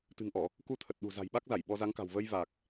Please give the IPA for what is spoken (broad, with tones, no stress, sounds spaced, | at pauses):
t̪ ɨ̤˨˩ ŋ ʔ ɔ˧˩˨ | k u˧ t̪ʰ ə˨˩ t̚ ɗ ṳ˨˩ z a̤˨˩ j ɓ a˦˥ k̚ z a˧˩ j ɓ ɔ˧ z a˨˦ ŋ k a̤˨˩ w v ə˧ j v aː˨˩ k̚